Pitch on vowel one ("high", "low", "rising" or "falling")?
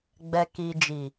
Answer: low